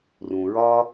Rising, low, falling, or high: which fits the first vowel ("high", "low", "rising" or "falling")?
low